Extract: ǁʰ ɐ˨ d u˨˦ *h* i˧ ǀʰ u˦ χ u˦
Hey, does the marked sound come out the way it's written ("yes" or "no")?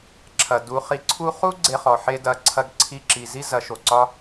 no